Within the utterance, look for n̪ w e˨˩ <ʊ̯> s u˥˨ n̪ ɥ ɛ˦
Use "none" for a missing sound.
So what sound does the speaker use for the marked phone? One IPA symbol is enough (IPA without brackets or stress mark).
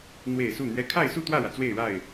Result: ɪ̯